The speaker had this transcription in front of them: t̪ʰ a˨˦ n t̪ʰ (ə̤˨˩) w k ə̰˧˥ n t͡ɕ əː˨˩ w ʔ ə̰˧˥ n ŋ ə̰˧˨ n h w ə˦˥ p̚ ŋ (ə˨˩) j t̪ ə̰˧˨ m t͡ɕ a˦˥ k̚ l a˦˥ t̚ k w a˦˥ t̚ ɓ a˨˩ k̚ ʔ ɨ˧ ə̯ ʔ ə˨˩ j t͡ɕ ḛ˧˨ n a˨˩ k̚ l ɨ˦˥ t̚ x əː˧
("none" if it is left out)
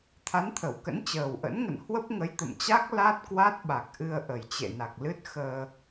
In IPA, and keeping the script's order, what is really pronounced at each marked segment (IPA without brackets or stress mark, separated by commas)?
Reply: ə˧˩, ə˨˦